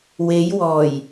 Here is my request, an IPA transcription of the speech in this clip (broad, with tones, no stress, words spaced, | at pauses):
we˨˧jwɔː˨˩j